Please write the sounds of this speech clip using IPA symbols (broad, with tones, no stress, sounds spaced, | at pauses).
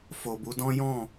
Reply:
f o˨ b u˨˦ d ɔ̃˦ j ɔ̃˦˨